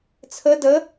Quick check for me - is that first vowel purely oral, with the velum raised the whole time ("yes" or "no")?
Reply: yes